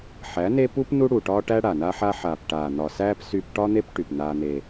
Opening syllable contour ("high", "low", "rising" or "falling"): rising